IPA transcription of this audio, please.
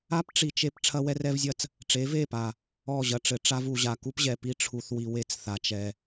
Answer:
a˦ p ʈ͡ʂ i˨ t͡ʃ e˦ p ʈ͡ʂʰ ɐ˦ w ɛ˦ r ɛ˦ v zʲ ɐ˦ t͡s | ʈ͡ʂ e˨˦ v e˦˨ p a˨ | ɔ˦˨ ʑ ɐ˨ ʈ͡ʂ ɘ˨ ʈ͡ʂ a˦ v u˨ ʑ a˨ k u˦ p ʑ ɛ˨ p i˦ ʈ͡ʂʰ u˨ θ w i˨ w e˦ t͡s θ a˨ t͡ʃ ɛ˨

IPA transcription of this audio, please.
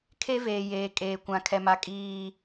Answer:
kʰ e˦ v eː˨ j eː˨ kʼ eː˨ kʷ ã˨ kʰ ɛ˨ m a˨ kʼ iː˨

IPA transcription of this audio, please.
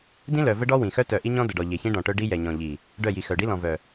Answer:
d ĩ˦ l œ˨ v ə˦ ɖ ɔ˦ w ĩ˨ x œ˦ t œ˨ ʔ i˦ ɲ ɔ̃˦ d ə˨ ɖ ɔ˨ ʎ e˨ ç ĩ˦ ɖ ɔ̃˨ ʈ œ˦ ɖ i˦ j ɛ˨ ɲ ɔ̃˨ ʎ i˨ | ɖ œ˦˨ j i˨ x œ˨ ɖ i˦ l ɔ̃˨ v œ˨

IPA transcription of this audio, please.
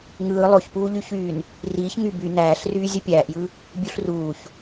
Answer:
ŋ ɯː lˠ o ç p uː ʎ y ç yː n | r iː ç ŋ y b y n æː ɬ r yː zʲ u pʲ æː ʔ j ɯ | bʲ u ɬ r uː ç

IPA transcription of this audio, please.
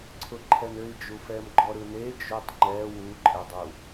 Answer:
ǀʰ ʊ ǃʰ ɛ n ø i̯ d͡ʒ u f ɛ m ɡ͡ǃ ɔ ɾ ɯ n e d͡ʒ o tˤ ŋ͡ǃ ɛ w u ǃʼ ɛ dˤ u

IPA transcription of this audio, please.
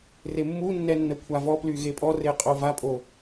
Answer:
r e mː u nː ɛ nː ə kʷʰ a v ɔ p l y ɣ e pʼ ɔ r e qʼ o v a pʼ o

